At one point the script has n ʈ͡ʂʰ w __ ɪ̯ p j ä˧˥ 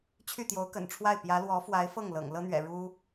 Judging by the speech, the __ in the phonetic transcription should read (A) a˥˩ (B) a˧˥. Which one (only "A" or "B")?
A